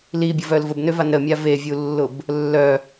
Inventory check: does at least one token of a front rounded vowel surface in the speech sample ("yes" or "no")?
yes